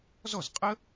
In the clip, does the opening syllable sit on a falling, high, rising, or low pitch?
falling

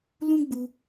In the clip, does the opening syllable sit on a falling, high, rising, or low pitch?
high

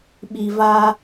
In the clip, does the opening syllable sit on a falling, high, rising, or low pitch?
low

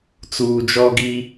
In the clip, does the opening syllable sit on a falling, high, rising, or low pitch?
low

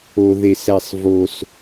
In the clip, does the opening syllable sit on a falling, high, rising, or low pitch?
low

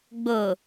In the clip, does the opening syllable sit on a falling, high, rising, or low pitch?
low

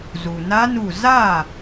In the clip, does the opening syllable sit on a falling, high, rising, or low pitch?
low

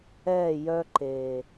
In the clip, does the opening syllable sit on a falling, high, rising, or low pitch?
falling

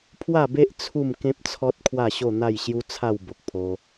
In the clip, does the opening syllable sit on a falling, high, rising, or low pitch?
falling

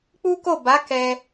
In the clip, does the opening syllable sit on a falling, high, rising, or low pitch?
high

